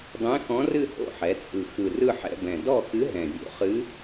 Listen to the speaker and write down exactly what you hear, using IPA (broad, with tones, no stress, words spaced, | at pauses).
dˤɛ̃˧˥xɔ̃˧˥rɨ˥˧ ho̰˥˧ħɛ˩˧t͡sʼɯ˨˩ xɯ˨˩rɯ˥˧ħɛ̰˥˧bɛ̃˨˩ dɔ˥˧xɨ˧˥ ɦɛ̃˨˩vʲo̰˧˥χɨ˧˥